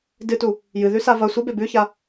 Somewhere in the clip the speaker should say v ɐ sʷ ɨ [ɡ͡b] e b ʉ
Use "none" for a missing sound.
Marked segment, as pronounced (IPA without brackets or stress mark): b